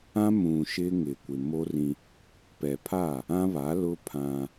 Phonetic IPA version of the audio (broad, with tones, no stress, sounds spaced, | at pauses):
ã˦ m ũ˨ ʃ ɪ˦ ŋ ɪ˨ kʷ ɪ˨ m o˦ r ĩ˦ | p ɛ˨ pʰ a˦˨ | ã˦ β a˨˦ l ʊ˦ pʰ ã˦